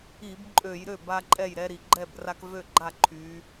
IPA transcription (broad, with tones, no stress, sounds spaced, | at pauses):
i˧˩˧ b ǃʼ ø˧˩˧ j ɾ ø˥˩ b a˦ ǃʼ ɛ˥˩ j ɾ ɛ˦ ɾ i˩ ɡ͡ǃ ɛ˥˩ b r a˦ k v ø˥˩ ɡ͡ǃ a˥˩ ǃʰ y˨˦